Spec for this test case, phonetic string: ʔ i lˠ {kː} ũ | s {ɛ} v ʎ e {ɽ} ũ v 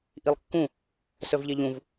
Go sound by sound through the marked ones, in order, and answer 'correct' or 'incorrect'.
correct, incorrect: œ, incorrect: ʎ

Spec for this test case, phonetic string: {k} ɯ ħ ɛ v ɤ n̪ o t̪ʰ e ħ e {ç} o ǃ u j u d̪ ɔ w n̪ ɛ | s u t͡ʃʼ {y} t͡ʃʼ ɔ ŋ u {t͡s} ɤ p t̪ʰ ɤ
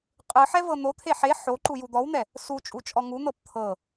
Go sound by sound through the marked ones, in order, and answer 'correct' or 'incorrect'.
incorrect: qʼ, incorrect: ħ, incorrect: u, incorrect: n̪

